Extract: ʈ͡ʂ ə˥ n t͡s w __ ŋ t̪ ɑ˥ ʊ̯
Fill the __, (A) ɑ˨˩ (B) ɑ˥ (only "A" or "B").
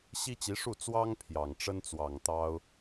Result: A